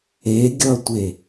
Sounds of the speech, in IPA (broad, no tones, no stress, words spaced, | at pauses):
eɡʲʌtʷe